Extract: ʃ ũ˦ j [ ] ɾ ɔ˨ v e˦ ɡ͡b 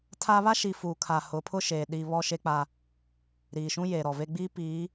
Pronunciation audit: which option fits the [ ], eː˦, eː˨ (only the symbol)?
eː˨